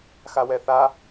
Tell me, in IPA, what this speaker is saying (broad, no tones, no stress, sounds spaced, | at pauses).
x a w ɛ θ a